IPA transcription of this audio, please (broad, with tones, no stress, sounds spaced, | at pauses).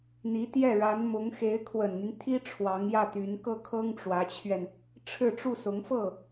n̪ i˧˥ t̪ j ɛ˥˩ ɻ a˧˥ n m ʊ˧˥ ŋ x e˧˥ ɪ̯ kʰ w ə˨˩ n n̪ y˦ n t̪ʰ i˥ ʈ͡ʂʰ w ɑ˧˥ ŋ j ä˥˩ t̪ y˧˥ n k ɤ˥˩ kʰ ɤ˥ ŋ ʈ͡ʂ w ä˧˥ t͡ɕʰ ɥ ɛ˧ n | ʈ͡ʂʰ ɻ̩˥˧ ʈ͡ʂ u˥˩ s ʊ˧˥ ŋ f ɤ˥˩